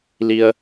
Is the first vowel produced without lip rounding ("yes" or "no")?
yes